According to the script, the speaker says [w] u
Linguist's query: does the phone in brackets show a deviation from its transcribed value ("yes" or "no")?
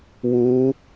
no